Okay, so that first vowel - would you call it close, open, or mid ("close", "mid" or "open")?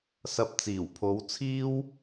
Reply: open